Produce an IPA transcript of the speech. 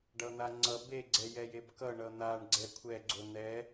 ɖ ʌ n̪ a ŋ͡ǀ ʌ b e ɡ͡ǀ ɛ j ɛ j e b k ʌ ɳ ʌ n̪ a ɳ ɡ͡ǀ ɛ kʷʰ ɛ ɡ͡ǀ o n̪ ɛ

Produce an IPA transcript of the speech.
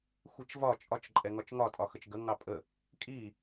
xʷ i t͡ʃ v ɒ t͡ʃʼ ɒ t͡ʃ ǃʼ ɛ ŋ ɒ t͡ʃ ŋ ɒ tʼ ɒ x ə t͡ʃ ɡ ə ŋ ɑ pʼ ə | kʼ i

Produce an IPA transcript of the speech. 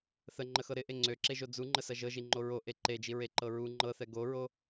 θ ə ŋ͡ǃ ə x ɤ ɾ ɪ ʔ e ŋ͡ǀ ø ǁ e ʒ o d͡z u ŋ͡ǃ ə s ɐ ʒ ɤ ʒ i ŋ͡ǃ o ɹ o ʔ e ǃ e d͡ʒ i ɹ e ǃ ɤ ɹ u ŋ͡ǃ ɤ θ ɛ ɡ o ɹ o

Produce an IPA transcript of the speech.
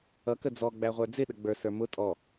ʌ k ə d͡z ɔ ɡ͡b æ ʁʷ ə˞ d͡z ɪ ɗ ə ɡ͡b ə˞ s ə˞ m ʊ tʼ ɔ

